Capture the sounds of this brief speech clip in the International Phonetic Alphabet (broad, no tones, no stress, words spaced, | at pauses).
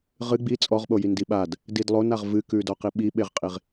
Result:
ʁɨ ɡ͡bi t͡sʼɔʁɓo jindiɓad | didlˠonaʁ vɨkʉdɔ qiɓiɓeʁqʼiʁ